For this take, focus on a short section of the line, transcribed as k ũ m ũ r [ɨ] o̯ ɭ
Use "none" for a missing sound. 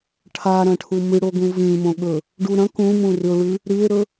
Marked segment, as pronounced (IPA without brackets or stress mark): ɨ